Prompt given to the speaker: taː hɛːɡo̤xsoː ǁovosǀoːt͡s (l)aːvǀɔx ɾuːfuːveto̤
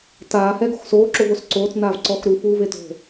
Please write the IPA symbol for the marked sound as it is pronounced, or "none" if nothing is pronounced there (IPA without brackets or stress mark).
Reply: n